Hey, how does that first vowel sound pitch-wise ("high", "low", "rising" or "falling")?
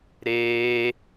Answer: high